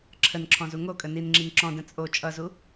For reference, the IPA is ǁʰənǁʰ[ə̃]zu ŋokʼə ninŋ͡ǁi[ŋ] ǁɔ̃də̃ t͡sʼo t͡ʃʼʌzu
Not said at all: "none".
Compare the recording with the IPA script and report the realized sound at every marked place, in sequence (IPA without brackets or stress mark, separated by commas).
ɔ̃, ŋ